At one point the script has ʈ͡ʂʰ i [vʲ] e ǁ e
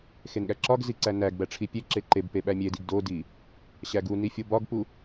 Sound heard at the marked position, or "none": pʲ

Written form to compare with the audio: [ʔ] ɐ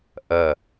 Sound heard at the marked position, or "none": ʔ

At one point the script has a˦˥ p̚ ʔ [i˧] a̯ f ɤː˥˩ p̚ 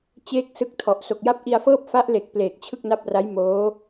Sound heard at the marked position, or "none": i˧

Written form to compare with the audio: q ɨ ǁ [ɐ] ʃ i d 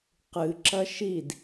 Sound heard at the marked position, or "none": ɐ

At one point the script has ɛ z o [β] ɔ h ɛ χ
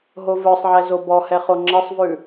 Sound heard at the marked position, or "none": b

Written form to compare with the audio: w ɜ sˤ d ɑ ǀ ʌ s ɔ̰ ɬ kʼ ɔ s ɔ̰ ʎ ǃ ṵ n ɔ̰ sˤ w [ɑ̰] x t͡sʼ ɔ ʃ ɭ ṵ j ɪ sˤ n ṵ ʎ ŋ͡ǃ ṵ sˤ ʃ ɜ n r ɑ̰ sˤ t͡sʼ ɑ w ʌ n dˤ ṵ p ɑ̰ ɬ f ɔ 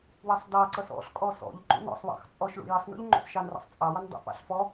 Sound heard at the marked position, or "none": ɑ̰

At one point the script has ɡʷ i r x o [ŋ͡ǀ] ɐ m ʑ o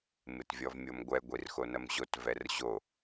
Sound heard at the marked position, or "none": n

